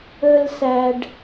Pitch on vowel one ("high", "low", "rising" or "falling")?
high